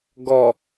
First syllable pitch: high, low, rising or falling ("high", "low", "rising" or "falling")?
low